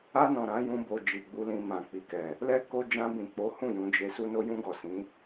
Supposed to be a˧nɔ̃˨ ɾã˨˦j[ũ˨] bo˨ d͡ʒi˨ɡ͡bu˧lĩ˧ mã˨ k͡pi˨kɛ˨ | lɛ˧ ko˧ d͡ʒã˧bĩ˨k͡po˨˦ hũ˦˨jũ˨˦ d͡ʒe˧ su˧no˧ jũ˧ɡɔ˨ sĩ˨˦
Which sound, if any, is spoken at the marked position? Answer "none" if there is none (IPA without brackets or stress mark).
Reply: ũ˧